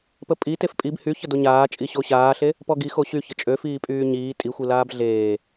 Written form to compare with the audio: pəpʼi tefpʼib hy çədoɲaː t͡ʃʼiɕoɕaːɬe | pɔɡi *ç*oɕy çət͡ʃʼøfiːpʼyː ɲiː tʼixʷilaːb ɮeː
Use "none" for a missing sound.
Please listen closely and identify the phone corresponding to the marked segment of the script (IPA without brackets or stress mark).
x